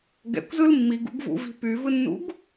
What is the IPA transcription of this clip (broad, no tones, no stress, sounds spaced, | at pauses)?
ɡ ɛ̰ kʷ z ɯ l mː i ɡ ṵ ɡ v ṵ v i̤ p y v ɯ nː ṵ ɡ